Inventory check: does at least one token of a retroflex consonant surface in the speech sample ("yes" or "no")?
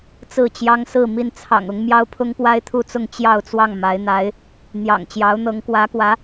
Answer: no